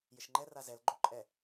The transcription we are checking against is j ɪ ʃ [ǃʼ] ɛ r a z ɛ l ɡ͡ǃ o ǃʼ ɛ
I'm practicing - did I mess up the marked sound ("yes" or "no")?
yes